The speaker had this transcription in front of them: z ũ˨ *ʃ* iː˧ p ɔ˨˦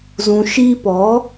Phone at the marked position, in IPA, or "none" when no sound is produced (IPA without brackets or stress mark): ʃ